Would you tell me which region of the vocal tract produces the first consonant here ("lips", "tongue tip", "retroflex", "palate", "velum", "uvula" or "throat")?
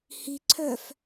throat